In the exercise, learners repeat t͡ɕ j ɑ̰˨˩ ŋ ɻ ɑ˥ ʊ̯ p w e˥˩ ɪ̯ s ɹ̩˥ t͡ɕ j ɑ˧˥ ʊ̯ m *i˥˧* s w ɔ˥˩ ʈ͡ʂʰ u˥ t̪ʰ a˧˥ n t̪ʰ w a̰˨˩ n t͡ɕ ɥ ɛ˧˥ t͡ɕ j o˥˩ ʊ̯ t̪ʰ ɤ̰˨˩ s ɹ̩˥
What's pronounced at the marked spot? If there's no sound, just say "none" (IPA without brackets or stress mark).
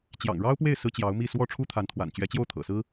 i˥˧